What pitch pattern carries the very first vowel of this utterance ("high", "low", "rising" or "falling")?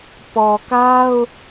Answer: low